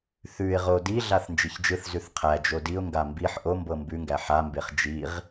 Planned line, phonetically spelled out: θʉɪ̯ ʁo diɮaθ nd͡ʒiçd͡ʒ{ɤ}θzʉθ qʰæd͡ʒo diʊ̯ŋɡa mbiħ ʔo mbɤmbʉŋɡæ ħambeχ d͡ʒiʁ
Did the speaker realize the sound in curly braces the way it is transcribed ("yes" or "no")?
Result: no